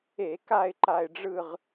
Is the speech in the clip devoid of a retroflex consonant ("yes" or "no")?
no